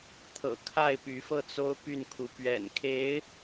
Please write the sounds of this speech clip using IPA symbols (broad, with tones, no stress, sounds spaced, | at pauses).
t̪ʰ ɤ̰˨˩ kʰ a˥˩ ɪ̯ p y˧˥ f ɤ˥˩ t͡s o˥ ʊ̯ p y˥˩ n kʰ u˧˥ p ɥ ɛ̰˨˩ n kʰ e˧˥ ɪ̯